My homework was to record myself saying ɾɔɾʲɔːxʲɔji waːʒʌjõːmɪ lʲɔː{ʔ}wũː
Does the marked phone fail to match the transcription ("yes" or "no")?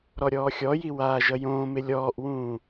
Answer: no